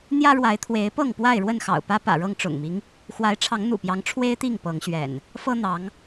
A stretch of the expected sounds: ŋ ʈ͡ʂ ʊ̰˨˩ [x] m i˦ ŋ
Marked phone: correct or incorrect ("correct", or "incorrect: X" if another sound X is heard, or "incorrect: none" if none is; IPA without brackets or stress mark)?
incorrect: ŋ